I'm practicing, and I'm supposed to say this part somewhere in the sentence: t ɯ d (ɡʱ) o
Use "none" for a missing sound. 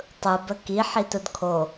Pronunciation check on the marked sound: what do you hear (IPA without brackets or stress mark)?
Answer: kʰ